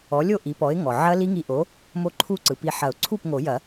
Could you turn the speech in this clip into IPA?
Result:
ɔ˩˥ lʲ o˥˩ ʔ i˩˥ p ɔ˩˥ ɪ̯ ŋ ɔ˩ ʕ ɐ˦˥ l i˦˥ ŋ i˧˩ ʔ o˩˥ | m o˦˥ ǃʰ u˥˩ ǀ ɯ˩ p i˧˩ ħ ɐ˨˩˦ ʊ̯ ǀʰ u˥˩ p ŋ o˨˩˦ j ɐ˨˩˦

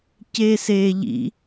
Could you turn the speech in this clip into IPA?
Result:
c eː s eː ʎ ḭ

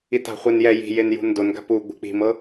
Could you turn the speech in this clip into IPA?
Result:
i t a̤ χʷ e n j ɛ j i̤ j e n j ṳ n d o n ɡ a̤ p u ɡ͡b ṳ k͡p i̤ m ɤ

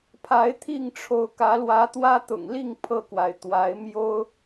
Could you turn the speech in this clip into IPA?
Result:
pʰ a˨˦ ɪ̯ t̪ʰ i˥˨ ŋ ʈ͡ʂʰ o˨˦ ʊ̯ k ä˨˦ l w ä˨˦ t̪ w ä˦ t̪ ʊ̰˨˩ ŋ l i˥˨ ŋ pʰ ɤ˥˨ k w a˩ ɪ̯ t̪ w a˨˦ ɪ̯ m j o˦ ʊ̯

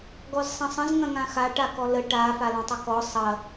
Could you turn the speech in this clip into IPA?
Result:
ɡ ɔ z sˤ ɐ̃ sˤ ə̃ z ŋ ɐ̃ ŋ ã x a ʈ a k ɔ l ə ʈ a f a l ã tˤ ɵ k ɔ sˤ ɐ

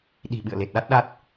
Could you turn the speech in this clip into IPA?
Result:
ɗ i̤˨˩ ɓ ɨ̰˧˨ ə̯ l e˨˩ t̚ ɗ a˦˥ t̚ ɗ a˦˥ t̚

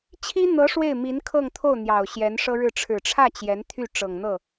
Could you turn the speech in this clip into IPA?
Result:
t͡ɕʰ i˥ n̪ ɤ˧˥ ʂ w e˥˩ ɪ̯ m i˧˥ n kʰ ɤ˥˧ ŋ t̪ʰ o˥˩ ʊ̯ n̪ j ɑ˨˩ ʊ̯ ɕ j ɛ˧˥ n ʂ ɤ˥ ɻ ɻ̩˥˩ ʈ͡ʂʰ ɻ̩˨˩ ʈ͡ʂʰ ä˥˩ t͡ɕ j ɛ˧˥ n t̪ʰ y˥˩ ʈ͡ʂ ɤ˨˩ ŋ n̪ ɤ˥˩

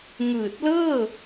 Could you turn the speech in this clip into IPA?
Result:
ŋ ɯː˨˩ t̚ l ɤː˥˩

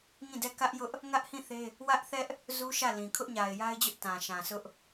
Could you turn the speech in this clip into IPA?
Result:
ŋ ĩ˦˨ d ɛ˦˨ k ä˦ ʔ j ʊ˦ ʔ | ŋ ä˦ ʔ h ĩ˦˨ θ e˦ | w ä˦ ʔ θ ɛ˦ ʔ | z u˦ ʃ ä˦˨ l ĩ˨ kʰ ʊ˦ ʔ ɲ a˨ ɪ̯ j a˦ ɪ̯ d͡ʑ ʊ˦ ʔ t ã˨ ʃ ã˨ s ʊ˦ ʔ

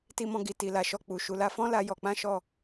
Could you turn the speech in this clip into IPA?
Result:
t i˦ m ɔ̃˦ ɡ i˧ t i˨ l a˨ ʃ ɔ˧ k͡p u˨ ʃ u˨ l a˧ f ɔ̃˦ l a˧ j ɔ˧ k͡p ã˦ ʃ ɔ˦˨

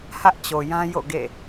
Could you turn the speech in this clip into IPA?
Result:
h ä˦ ʔ t͡ɕ o˨ j ã˦ j o̰˦˨ ɡ ḛ˦˨

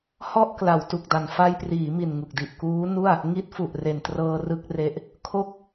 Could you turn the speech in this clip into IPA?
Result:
h ɔ˥˩ ʔ k l a˩˦ w t u˨˩ k̚ d a˨˩ n f a˧ j p r iː˩˦ m i˨˩ n ŋ u˨˩ k̚ d i˨˩ ʔ k uː˦˥ n u˥˩ a̯ | ŋ i˦˥ t̚ f u˨˩ ʔ r e˨˩ n t r ɤː˧ r ɯ˥˩ k̚ r e˦˥ ʔ | kʰ o˥˩ k̚

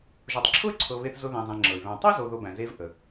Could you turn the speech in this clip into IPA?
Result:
ʒ o˨ tˤ ǁʰ ʊ˥ y̯ ǀʰ ɤ˨ β e˦ θ z ʊ˦ ð æ̃˨ zˤ æ̃˨ ŋ͡ǁ ɤ˩ y̯ β æ̃˨ tˤ ɤ˥ z o˨ ð o˨ b æ̃˩ z e˦ v ʔ ə˩

